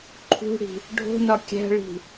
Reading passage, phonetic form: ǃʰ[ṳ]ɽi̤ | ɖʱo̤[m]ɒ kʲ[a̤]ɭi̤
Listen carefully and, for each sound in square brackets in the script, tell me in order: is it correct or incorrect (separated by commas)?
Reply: correct, incorrect, incorrect